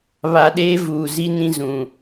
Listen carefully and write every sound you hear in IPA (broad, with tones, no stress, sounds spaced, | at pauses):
β a˨ ɗ eː˦ v uː˨ z i˦ n ĩ˦ z ũ˨